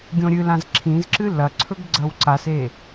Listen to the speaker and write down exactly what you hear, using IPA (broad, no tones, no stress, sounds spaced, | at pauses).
ɡʲ õ ɾʲ ɨ l ã z ǁʰ ĩ z ǁ ɨ l ɐ ǀʰ ɵ ɡ ɡ͡ǀ ɐ w ǀ a s e